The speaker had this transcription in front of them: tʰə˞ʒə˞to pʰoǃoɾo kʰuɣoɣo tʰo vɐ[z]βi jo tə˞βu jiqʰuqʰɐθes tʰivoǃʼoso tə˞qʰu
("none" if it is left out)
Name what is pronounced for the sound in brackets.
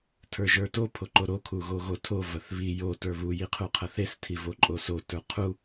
θ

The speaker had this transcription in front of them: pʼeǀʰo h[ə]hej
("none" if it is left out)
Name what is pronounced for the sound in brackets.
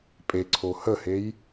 ə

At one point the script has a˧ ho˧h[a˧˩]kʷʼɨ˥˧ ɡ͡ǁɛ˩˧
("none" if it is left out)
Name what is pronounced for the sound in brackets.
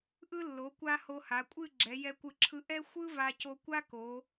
a˩˧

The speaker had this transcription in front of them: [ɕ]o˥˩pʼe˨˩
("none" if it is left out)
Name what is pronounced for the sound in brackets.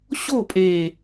ɕ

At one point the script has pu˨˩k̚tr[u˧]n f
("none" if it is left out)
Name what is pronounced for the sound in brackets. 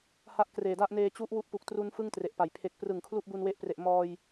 u˧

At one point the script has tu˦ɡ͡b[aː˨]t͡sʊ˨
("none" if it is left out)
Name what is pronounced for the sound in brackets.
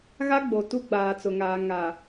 aː˨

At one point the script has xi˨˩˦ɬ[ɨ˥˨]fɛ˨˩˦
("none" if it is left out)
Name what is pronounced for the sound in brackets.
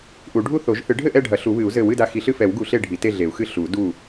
ɨ˥˨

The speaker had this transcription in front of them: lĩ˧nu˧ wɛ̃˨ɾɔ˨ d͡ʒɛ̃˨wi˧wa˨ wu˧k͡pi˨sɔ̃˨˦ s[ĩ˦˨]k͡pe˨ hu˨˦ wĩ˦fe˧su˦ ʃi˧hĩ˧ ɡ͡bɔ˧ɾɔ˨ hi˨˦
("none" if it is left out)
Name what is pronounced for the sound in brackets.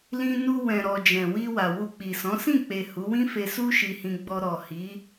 ĩ˦˨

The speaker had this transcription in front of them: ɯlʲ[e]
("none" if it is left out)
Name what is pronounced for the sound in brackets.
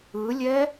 ɛ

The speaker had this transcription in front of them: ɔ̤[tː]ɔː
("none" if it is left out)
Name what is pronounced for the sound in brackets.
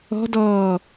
d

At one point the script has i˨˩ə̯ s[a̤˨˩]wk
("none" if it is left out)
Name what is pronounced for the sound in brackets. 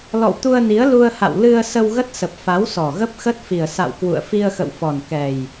a̰˧˨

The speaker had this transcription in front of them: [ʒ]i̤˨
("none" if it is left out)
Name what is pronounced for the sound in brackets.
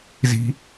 z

